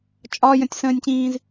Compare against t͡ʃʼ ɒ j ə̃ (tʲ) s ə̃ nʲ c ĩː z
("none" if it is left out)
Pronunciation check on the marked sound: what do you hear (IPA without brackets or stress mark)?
tʲ